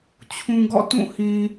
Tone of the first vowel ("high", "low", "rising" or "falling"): low